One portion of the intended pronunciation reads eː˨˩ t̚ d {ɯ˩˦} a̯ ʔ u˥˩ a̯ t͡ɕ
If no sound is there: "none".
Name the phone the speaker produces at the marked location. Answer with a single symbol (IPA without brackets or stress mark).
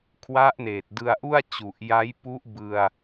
ɯ˧